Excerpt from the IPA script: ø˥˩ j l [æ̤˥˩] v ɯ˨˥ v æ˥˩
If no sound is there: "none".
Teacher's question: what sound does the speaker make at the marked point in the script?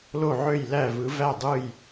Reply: æ˥˩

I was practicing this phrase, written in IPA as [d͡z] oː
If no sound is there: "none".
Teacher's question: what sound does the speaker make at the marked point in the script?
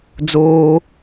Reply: d͡z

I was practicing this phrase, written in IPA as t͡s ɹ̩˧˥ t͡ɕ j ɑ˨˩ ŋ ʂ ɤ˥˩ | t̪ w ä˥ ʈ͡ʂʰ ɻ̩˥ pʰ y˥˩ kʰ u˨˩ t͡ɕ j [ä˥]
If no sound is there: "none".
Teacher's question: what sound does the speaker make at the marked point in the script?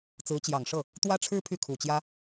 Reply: ä˥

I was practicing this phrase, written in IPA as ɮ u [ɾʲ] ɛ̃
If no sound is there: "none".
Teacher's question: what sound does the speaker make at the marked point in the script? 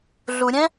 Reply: ɾʲ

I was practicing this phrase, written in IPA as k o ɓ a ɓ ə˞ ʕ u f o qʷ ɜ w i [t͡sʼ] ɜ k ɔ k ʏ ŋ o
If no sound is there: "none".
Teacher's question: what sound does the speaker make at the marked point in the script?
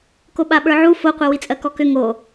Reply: t͡sʼ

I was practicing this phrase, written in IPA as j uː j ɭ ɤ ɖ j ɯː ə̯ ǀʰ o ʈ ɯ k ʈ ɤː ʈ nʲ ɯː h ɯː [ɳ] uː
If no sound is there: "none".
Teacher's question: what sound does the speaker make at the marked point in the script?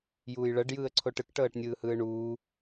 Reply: ɳ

